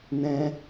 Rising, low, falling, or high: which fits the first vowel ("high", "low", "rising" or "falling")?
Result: high